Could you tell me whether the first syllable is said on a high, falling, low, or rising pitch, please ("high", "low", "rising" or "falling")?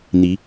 rising